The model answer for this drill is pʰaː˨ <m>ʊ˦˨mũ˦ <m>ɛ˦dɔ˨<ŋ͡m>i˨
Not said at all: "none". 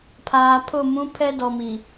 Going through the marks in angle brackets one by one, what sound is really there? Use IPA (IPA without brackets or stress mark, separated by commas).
pʰ, pʰ, m